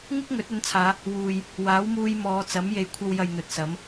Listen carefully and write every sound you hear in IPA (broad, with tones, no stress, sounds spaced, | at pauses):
ŋ ɪ˥ k̚ ŋ ɵ˨˥ t̚ ɵ˨˥ n t͡sʰ aː˨˧ | w uː˨ j | w aː˨˥ w m uː˧ j m ɔː˨˧ t͡s ɐ˨˥ m j e˨ j kʷʰ ɐ˧ w j ɐ˨ j n̪ ɵ˨ t̚ s ɐ˨˥ m